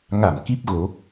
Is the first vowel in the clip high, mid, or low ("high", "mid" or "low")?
low